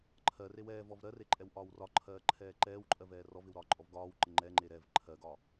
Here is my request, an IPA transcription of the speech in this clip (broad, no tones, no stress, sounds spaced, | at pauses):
ǃʰ ɜ r e w ɛː v ɔ v ɾ ɜ r e ǃʼ ɛ w ʔ ɒː w r ɒ ǃʰ ɜː ǃʰ ɛː ǃ ɛː w ǃʼ ɜ v ɛː r ɔ v ɪ w ɾ ɒː ǃʼ ɔ v ɡ ɒː w ǃ ɪ ŋ͡ǃ ɛ ŋ͡ǃ e ɾ ɛ v ǃʰ ɜ ɡ ɒ